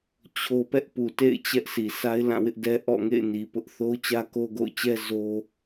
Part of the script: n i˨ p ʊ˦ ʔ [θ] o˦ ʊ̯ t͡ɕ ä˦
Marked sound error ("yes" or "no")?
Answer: no